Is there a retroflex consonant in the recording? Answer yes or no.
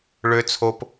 yes